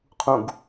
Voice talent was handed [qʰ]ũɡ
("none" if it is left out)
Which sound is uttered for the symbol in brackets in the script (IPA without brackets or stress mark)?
qʰ